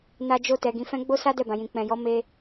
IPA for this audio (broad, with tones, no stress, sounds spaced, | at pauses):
n a˧ d͡ʒ o˧ t ɛ˨ ɡ ĩ˨ f ɛ̃˧ ɡ͡b o˦ s a˦ d ɛ˦˨ b ã˨ j ĩ˨ k͡p ɛ̃˨ j ɔ˨˦ m e˦